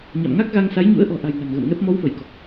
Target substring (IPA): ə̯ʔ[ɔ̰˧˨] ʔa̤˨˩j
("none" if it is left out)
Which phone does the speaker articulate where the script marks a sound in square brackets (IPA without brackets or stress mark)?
ɔ̤˨˩